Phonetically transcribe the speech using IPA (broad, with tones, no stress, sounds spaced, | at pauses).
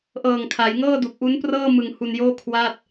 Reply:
ʔ ɤː˨˩ ŋ kʰ a˩˦ j ŋ ɤː˥˩ d u˨˩ k̚ ʔ u˦˥ n p r ɤː˥˩ m ɯ˧ ŋ h u˧ n j oː˥˩ kʰ w aː˥˩ t̚